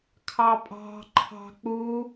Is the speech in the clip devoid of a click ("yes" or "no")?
no